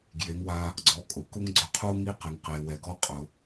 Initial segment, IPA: ɡ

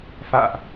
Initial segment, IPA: f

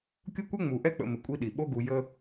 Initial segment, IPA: kʲ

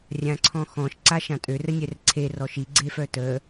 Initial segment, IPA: rʲ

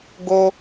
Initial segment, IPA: ɡ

